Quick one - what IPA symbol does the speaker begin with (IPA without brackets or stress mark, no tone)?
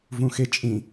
v